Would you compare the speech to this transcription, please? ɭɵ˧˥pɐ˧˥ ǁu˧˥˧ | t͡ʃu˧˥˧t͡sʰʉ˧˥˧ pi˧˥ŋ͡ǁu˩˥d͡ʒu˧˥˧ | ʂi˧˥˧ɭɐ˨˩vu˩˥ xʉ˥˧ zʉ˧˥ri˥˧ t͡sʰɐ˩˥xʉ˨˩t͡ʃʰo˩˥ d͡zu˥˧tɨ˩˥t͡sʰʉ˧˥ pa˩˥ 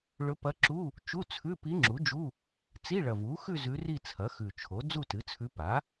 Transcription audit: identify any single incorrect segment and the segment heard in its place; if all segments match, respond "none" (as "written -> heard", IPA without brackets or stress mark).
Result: ʂ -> t͡s